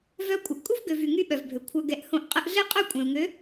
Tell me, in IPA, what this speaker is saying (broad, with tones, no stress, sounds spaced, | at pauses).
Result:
v œ˦ kʷʼ ə˨ ʔ kʼ u˦ v ɡ ø˨ v y˨ ŋ y˦ ɓ œ˨ v bʱ ø˨ kʷʰ œ˨ ɡ ɛ˨ ʔ h õ˦ ʔ qʼ ə˦ ʔ ɮ e˦ qʼ œ˦˨ kʷʼ ɛ̃˨ u̯ ŋ ø˨˦